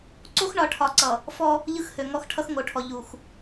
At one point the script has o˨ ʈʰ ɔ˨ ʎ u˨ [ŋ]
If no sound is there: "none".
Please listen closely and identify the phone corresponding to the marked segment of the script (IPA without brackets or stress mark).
x